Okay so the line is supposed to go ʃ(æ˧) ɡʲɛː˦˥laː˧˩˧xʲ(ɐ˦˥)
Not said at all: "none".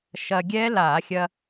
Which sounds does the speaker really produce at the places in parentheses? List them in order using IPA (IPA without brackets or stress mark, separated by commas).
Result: ɐ˧, ɐ˧